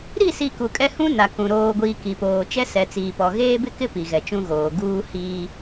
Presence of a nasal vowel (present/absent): present